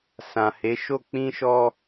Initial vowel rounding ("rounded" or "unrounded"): unrounded